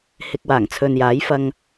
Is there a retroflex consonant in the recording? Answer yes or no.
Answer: no